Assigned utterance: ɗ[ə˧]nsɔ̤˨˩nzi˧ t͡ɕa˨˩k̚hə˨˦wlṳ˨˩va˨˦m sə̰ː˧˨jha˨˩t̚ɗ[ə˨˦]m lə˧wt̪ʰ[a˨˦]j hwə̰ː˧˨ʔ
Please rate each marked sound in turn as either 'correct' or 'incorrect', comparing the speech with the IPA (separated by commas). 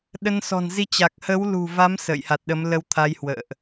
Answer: correct, correct, correct